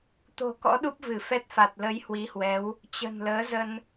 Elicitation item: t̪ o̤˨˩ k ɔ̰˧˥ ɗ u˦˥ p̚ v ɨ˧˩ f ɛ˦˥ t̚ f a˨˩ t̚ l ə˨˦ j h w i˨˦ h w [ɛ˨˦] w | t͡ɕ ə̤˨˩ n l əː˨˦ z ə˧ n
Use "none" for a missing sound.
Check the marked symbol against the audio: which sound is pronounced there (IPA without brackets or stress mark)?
ɛ˨˦